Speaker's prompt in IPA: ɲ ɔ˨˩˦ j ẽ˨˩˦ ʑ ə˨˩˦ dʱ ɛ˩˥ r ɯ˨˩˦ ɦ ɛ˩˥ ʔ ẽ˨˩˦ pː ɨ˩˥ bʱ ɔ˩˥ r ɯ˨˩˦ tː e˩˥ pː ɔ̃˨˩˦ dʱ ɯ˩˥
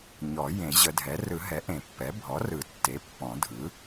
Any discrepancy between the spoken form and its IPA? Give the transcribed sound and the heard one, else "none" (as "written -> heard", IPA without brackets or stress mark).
ɨ˩˥ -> ɛ˩˥